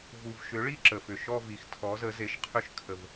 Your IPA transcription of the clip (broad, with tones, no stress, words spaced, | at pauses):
vu˨vʃʏ˨˥ɭi˥˧ ǁə˨fʏ˨ ʃɔ˥˧vi˨x tʰɔ˨˥zə˨˥ze˨˥ʃqʰʏ˥˧ʃ kʰə˨v